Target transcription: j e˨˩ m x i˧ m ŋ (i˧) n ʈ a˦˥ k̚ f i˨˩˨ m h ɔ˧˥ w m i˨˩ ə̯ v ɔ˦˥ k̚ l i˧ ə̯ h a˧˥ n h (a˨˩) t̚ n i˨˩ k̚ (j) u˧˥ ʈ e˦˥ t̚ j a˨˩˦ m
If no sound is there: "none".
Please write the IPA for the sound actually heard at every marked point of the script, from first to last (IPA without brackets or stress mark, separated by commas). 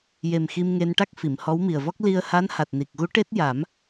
e˧, a˨˩, ɣ